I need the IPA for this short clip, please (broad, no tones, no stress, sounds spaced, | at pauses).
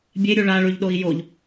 bʲ e ɾʲ u ɭ a ɭ ʉ ʎ ɗ o i̯ j o ʎ